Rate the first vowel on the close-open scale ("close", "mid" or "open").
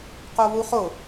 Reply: mid